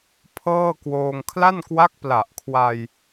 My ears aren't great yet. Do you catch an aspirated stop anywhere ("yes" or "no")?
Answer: yes